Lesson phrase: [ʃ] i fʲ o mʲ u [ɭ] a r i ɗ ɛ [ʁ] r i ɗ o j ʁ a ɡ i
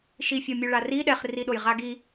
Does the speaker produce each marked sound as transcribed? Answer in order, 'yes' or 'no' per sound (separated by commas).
yes, yes, no